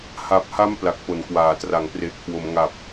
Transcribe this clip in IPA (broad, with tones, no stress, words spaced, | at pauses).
ha˨˩p̚ha˦˥m pla˨˩k̚po˩˦nkwaː˩˦ tra˩˦ŋpre˨˩ʔ kʰwo˩˦mŋa˨˩p̚